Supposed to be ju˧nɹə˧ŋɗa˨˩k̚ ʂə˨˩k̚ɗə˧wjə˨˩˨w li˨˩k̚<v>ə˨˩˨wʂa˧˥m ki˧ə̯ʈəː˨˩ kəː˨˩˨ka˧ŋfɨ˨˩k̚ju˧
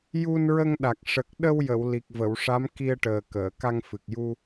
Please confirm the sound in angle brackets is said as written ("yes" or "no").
yes